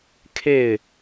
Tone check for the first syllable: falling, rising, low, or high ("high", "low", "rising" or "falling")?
falling